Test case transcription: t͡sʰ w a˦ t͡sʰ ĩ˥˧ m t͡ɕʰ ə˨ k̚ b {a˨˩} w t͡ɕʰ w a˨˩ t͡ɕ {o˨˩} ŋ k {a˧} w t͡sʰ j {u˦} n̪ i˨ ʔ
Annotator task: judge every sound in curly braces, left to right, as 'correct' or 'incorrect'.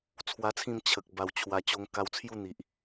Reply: correct, incorrect, correct, incorrect

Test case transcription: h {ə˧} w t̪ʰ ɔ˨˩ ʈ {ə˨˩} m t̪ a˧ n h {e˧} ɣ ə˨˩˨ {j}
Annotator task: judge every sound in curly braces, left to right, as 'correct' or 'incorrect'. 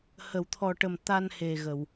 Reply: incorrect, correct, incorrect, incorrect

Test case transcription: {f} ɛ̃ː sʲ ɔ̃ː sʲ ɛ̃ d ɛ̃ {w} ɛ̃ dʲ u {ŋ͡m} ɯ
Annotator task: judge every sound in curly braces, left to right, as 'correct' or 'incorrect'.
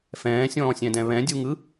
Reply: correct, incorrect, incorrect

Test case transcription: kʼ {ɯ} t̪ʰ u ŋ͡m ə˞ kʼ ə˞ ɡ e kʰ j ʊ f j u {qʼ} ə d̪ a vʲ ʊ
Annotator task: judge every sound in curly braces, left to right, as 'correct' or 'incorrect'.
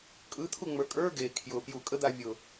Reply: correct, incorrect

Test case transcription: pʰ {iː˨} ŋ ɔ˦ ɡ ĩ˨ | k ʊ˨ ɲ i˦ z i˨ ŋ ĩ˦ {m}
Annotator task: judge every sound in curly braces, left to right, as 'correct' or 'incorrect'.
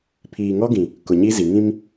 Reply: correct, correct

